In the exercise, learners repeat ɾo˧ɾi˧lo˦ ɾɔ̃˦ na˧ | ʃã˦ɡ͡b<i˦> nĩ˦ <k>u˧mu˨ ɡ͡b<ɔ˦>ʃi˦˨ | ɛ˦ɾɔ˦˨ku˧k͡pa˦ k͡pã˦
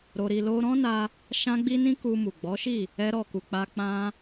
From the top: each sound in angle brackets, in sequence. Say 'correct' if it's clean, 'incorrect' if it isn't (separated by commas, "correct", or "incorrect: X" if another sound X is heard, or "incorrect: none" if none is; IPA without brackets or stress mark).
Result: correct, correct, incorrect: ɔ˨˦